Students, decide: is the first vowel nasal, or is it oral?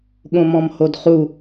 nasal